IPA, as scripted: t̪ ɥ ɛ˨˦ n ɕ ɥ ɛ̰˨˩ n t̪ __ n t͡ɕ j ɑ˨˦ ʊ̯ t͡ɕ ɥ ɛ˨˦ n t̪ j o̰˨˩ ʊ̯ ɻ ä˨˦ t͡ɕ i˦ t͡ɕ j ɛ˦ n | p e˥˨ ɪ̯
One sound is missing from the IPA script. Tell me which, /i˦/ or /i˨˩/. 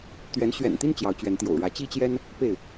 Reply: i˦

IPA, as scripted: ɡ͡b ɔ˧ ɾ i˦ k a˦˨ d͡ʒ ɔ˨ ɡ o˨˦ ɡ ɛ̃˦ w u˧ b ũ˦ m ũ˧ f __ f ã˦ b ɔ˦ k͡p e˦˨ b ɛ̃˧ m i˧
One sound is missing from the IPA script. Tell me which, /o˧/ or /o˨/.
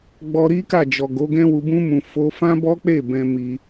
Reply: o˧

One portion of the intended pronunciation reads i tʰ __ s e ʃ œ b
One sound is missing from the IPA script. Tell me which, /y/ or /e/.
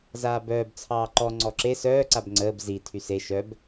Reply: y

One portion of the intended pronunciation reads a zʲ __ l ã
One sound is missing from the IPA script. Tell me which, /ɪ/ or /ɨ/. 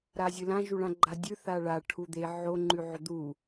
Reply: ɨ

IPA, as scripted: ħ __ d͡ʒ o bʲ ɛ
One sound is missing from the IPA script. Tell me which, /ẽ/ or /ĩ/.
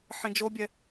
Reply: ĩ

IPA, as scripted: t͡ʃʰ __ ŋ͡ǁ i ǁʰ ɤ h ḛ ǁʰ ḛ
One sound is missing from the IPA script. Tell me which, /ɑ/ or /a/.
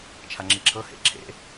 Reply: a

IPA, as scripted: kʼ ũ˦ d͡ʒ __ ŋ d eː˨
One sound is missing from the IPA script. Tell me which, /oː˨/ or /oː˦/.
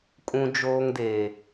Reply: oː˦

